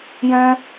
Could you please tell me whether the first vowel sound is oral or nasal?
nasal